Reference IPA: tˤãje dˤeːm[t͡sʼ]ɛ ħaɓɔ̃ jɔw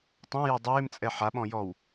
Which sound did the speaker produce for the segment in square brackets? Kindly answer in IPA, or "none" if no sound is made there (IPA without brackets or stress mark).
t͡sʼ